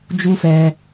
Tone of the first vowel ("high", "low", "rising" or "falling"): high